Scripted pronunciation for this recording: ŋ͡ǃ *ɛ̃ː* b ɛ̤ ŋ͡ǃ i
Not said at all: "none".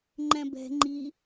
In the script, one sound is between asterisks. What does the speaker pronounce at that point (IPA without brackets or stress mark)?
ɛ̃